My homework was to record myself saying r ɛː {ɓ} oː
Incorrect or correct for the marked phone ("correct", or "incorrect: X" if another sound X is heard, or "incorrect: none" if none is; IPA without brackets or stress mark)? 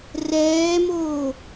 incorrect: m